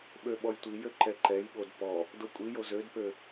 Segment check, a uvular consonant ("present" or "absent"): absent